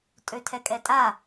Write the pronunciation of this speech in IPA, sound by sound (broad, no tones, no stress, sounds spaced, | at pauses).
tʼ ø tʰ ɛ kʼ ɛ tʼ a